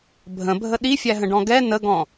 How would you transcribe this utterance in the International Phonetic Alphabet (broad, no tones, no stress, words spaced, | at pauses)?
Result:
bʱə̃bʱə ɗifʲæɦə̃ɖɔ̃ ɡɛ nəɡɔ̃